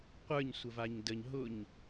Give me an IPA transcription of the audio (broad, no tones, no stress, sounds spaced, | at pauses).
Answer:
qʷ ə˞ ɲ sʷ ə v a ɲ d ə ɲ ɦ ʊ ɲ